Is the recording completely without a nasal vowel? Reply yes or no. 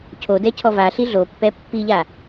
yes